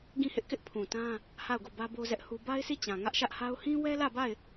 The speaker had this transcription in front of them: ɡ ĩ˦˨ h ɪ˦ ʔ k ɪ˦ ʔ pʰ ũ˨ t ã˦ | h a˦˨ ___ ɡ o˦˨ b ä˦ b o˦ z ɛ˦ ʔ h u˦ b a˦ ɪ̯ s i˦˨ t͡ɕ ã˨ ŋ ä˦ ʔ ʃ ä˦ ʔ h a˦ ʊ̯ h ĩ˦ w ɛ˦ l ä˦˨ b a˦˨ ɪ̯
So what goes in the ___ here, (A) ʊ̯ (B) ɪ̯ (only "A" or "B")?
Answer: A